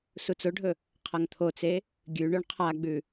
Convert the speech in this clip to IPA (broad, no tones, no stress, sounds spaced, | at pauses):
s u t͡s o ɖʱ ɵ | qʰ ɐ ŋ t̪ʰ o t͡s e | ɡʲ ʉ ɳ ɵ ɳ qʰ a ɡ͡b ʉ